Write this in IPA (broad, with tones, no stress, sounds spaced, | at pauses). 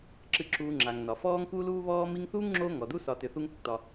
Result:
ǁ ɨ˨ ǁ uː˨ ŋ͡ǁ a˩ ŋ n ɒ˩ f ɔː˦ ŋ k u˥ l uː˥ β ɔː˥ m i˦ ŋ θ uː˥ ŋ ŋ͡ǁ oː˦ ŋ ɔ˩ d u˥ s ɒ˨ t ʏ˨ θ u˦ ŋ tː ɒ˨